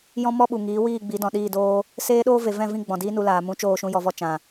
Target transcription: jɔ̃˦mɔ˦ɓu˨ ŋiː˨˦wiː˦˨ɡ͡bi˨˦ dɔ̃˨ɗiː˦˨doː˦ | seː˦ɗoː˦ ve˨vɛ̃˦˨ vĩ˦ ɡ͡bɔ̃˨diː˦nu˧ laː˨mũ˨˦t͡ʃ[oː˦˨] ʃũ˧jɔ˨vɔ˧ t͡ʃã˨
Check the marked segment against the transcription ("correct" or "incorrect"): correct